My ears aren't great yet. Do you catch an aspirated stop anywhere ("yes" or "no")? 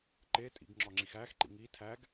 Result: yes